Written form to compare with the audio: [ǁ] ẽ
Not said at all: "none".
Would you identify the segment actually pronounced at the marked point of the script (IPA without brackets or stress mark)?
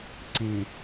ǀ